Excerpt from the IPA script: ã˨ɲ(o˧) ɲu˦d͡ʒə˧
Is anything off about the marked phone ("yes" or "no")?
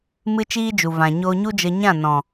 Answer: no